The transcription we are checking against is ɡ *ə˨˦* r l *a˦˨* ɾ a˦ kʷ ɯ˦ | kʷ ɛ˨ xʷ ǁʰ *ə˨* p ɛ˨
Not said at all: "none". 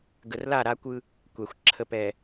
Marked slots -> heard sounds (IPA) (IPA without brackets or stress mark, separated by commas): ə˨, a˦˨, ə˨